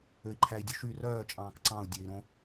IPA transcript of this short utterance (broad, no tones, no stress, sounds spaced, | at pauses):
ø i̯ ǃʰ æ i̯ dʲ u ʃ y r œː t͡ʃʼ ɑ̃ː k ǀ ɑ̃ u̯ dʲ ø i̯ ɾ õ